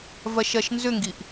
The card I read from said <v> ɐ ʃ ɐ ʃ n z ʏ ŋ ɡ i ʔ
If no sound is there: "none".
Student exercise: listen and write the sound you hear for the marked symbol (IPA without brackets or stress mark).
v